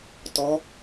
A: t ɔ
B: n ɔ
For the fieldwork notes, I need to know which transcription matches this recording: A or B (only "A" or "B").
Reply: A